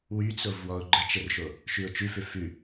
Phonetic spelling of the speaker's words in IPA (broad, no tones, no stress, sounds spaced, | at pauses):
w y t͡s o v w ɔ ʊ̯ ɡ͡ǃ ə t͡ʃ ə r ʃ o | ʃ ʉ ʊ̯ t͡ʃ ʉ f ʏ f ʉ